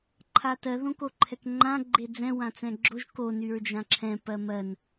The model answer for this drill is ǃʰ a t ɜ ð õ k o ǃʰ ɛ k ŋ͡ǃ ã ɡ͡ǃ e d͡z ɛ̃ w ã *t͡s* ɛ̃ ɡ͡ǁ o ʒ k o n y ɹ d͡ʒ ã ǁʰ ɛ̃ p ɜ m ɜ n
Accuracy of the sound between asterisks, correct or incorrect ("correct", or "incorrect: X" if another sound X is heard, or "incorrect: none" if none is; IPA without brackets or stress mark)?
correct